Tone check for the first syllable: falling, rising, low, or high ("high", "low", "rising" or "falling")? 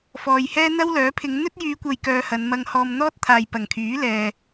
low